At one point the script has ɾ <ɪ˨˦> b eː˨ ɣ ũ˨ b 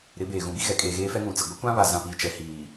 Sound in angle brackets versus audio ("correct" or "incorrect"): correct